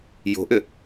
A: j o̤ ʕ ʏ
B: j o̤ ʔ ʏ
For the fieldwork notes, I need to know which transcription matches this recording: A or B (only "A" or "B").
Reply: B